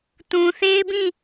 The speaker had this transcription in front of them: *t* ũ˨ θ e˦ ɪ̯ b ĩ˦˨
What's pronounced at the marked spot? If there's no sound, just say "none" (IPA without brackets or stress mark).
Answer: t